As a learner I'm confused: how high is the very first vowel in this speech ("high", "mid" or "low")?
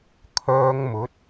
mid